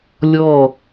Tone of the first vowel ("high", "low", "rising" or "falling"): falling